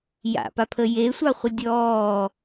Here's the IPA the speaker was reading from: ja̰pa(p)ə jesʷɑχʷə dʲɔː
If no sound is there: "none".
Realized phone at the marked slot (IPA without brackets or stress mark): pʰ